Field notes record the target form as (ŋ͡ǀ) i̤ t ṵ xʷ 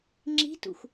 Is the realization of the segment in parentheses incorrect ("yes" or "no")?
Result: yes